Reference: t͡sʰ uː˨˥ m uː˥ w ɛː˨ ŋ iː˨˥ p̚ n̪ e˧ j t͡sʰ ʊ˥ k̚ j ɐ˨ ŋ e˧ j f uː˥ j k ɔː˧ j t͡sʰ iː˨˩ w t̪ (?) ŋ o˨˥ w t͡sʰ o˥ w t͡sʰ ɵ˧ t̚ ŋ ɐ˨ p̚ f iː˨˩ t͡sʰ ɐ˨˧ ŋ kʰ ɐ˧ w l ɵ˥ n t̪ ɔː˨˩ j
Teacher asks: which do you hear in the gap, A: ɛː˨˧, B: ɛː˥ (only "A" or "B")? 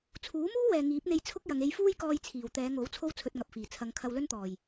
A